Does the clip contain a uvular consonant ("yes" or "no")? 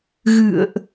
no